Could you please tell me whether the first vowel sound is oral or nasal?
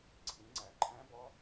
nasal